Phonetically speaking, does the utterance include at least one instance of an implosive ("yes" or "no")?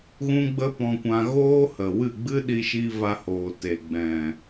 yes